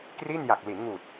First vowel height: high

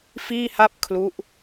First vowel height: high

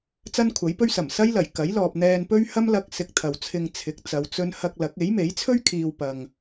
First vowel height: low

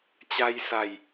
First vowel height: low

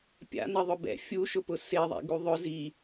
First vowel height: low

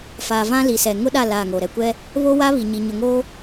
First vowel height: low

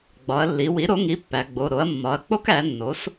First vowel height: low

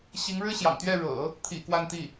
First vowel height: high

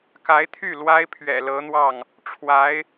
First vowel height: low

